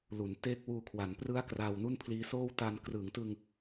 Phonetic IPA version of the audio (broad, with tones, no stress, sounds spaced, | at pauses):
l u˩˦ n t e˦˥ k̚ w uː˧ kʰ w a˩˦ n p r ɯ˦˥ a̯ k r aː˧ w n u˥˩ n pʰ l iː˦˥ s oː˥˩ w t a˧ n k r ɯː˩˦ ŋ t ɯ˧ ŋ